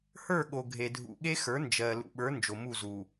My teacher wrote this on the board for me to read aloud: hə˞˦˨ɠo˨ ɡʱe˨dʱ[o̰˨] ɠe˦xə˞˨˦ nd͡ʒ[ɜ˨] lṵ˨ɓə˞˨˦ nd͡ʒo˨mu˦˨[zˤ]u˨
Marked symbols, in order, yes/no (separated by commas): no, yes, no